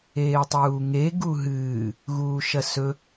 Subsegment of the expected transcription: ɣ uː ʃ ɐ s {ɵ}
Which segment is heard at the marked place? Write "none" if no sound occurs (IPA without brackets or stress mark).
ɵ